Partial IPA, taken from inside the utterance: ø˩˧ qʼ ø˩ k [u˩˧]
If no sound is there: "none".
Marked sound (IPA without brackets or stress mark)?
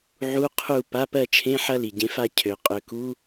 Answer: u˧˥˧